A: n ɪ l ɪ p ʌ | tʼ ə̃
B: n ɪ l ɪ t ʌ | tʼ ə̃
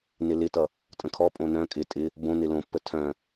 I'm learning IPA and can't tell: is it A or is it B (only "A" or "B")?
B